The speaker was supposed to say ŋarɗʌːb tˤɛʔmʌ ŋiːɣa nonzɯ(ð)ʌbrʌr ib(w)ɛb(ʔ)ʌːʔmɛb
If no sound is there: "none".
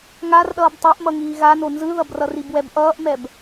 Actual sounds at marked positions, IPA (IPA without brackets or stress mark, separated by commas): ð, w, ʔ